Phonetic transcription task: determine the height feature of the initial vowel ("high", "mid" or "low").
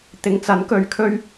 high